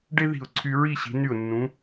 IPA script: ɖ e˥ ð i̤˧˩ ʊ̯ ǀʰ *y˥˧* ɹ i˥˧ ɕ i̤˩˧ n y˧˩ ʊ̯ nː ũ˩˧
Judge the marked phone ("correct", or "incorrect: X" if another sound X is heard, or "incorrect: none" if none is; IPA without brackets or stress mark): incorrect: y˧